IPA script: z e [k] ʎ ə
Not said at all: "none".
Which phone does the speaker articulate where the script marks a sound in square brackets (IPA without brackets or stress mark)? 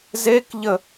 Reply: k